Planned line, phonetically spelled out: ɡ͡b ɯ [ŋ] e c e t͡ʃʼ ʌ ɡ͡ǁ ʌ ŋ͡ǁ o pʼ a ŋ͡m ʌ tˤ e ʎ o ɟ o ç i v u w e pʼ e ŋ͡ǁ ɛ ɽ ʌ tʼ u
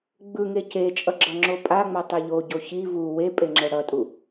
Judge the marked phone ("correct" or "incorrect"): correct